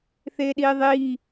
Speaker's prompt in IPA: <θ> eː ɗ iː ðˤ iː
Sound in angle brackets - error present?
no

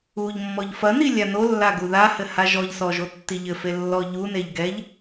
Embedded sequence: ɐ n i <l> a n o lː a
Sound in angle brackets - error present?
yes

